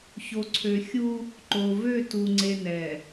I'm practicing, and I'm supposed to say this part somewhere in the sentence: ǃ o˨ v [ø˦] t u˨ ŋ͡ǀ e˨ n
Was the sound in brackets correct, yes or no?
no